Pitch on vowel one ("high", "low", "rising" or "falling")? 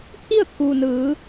falling